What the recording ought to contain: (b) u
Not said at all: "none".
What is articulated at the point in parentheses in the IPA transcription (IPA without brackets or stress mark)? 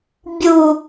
bʲ